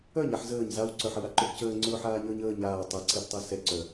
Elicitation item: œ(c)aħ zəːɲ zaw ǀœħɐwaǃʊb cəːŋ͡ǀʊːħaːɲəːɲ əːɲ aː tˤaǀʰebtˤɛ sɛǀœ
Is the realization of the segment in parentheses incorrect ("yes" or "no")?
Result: yes